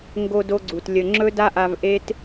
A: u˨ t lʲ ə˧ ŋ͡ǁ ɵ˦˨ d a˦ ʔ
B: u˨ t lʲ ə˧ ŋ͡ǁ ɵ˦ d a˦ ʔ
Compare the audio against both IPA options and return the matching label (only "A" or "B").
B